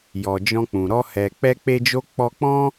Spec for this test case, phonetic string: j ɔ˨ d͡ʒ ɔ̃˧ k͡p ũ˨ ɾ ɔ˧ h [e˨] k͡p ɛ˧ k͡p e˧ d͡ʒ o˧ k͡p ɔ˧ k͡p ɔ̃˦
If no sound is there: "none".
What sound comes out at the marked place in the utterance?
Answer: ɛ˨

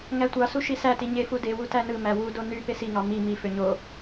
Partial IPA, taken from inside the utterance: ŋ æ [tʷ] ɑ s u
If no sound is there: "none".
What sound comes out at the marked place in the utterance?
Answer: tʷ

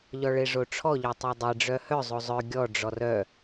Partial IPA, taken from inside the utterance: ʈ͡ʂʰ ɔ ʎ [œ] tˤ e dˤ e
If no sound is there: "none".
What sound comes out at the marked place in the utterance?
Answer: œ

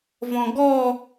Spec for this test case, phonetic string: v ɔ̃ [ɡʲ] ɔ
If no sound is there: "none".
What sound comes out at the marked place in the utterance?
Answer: ɡ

